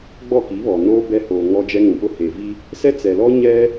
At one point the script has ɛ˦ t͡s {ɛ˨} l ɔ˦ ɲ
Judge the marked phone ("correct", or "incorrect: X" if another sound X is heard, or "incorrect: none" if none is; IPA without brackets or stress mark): correct